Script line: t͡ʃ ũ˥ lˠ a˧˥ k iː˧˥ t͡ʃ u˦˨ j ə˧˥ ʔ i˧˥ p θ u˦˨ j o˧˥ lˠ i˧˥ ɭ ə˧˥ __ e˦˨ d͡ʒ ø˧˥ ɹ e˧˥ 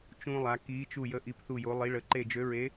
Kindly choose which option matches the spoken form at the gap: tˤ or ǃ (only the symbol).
ǃ